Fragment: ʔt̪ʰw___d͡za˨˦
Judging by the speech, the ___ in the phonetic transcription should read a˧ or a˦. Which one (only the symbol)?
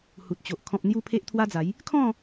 a˦